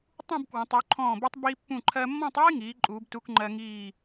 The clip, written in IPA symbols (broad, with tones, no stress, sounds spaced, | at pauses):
tˤ ũ˥˧ b k w ə̃˩˧ tˤ u˩˧ ǃʰ ɔ̃ː˧˩ b i˧ tˤ b iː˧ pː ũ˧˩ ǃʰ ɜ˧ mː ɔ̃˥˧ tˤ iː˥ ŋ iː˩˧ ǃʼ uː˩˧ b t u˧ k ŋ͡ǃ ɜ˧ ŋ iː˧˩